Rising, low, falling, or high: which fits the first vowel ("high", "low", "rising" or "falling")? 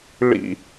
high